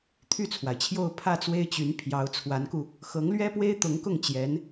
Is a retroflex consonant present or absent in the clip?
absent